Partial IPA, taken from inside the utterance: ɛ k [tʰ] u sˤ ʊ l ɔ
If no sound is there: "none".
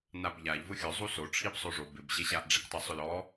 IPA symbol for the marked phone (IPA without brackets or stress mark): tˤ